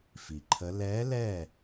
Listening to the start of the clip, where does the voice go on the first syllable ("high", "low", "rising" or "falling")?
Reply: low